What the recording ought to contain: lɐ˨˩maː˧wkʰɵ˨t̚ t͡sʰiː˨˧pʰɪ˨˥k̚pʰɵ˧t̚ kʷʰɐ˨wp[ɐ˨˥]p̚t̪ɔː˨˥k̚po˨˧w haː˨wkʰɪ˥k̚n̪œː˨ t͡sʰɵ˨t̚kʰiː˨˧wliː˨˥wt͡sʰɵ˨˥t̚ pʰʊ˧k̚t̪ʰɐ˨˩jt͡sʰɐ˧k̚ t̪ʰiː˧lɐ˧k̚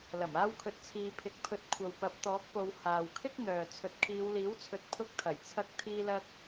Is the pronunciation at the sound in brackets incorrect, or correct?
correct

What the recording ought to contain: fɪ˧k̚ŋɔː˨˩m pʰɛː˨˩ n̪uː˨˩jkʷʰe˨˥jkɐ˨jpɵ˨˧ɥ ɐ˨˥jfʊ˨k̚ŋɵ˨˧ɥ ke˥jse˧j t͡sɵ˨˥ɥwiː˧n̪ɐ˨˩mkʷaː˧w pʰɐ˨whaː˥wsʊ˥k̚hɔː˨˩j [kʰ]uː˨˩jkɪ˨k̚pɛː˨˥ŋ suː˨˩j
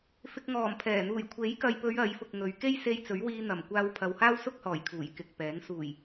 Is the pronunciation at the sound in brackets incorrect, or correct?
correct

